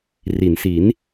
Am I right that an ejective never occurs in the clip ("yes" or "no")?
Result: yes